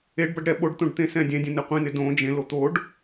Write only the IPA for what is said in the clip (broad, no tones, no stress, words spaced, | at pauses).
eɖbʌɖ ɾɛ ɓoɖt̪õɖ t̪ẽsɛ̃dʲɛ̃dʲɛ̃ neqʷĩnɪ dõ d͡ʒẽlo t̪oɖ